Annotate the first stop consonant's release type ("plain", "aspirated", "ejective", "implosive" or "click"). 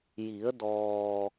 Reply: plain